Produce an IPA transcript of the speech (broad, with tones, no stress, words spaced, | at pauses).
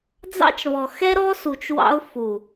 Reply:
d͡zɑ̰˦t͡ʃβɔ˨ xɛ˦ɾɔ˦su˨t͡ʃ wɑ̰˦ʊ̯ fu˨